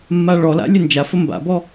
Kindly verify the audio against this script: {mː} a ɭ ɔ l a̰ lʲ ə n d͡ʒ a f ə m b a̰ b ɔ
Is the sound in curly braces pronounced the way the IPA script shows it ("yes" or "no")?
yes